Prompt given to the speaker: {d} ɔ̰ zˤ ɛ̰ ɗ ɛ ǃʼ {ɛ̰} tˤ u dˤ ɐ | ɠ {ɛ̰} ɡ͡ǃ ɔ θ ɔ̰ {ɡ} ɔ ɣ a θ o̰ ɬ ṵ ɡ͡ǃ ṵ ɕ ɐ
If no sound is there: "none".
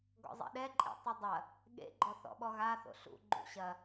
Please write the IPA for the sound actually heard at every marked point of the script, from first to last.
ɡ, ḛ, ḛ, ɓ

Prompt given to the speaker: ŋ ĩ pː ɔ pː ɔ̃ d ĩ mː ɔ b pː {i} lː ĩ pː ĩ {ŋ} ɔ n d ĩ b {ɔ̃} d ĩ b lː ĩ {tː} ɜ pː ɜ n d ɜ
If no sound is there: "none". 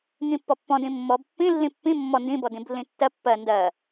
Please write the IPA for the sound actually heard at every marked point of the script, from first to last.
ĩ, mː, ɔ, tː

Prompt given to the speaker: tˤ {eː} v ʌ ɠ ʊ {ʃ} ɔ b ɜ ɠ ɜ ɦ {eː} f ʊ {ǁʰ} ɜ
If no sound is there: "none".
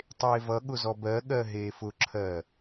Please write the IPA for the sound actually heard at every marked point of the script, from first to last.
eː, z, eː, ǁʰ

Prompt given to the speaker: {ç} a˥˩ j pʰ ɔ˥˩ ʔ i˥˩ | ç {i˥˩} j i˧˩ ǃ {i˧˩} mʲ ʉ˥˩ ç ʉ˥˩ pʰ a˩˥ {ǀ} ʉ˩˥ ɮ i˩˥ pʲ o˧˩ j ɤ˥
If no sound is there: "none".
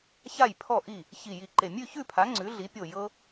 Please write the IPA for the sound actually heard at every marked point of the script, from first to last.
ç, i˧˩, e˧˩, ŋ͡ǀ

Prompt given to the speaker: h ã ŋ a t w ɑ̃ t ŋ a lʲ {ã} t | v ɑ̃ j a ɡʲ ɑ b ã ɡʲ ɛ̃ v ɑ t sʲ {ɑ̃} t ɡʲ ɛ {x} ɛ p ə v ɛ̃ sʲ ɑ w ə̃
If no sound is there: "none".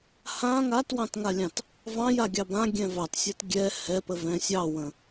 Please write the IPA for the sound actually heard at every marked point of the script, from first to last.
ɑ̃, ɑ, h

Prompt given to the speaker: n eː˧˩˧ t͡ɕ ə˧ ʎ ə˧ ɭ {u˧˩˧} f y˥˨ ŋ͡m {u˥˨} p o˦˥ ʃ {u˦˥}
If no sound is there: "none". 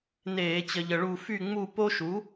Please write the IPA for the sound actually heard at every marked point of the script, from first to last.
u˥˨, u˥˨, u˩˥

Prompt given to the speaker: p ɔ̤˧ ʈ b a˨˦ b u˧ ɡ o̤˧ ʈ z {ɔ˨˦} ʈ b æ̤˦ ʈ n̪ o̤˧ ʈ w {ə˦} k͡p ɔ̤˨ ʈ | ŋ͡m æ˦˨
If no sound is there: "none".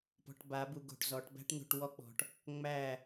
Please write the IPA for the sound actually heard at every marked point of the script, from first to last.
ɔ˨˦, ɔ˦

